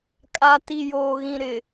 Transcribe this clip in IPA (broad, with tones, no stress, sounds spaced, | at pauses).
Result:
kʼ a˨ t i˨ j oː˨ ɣ ĩ˨ ɾ ɪ˨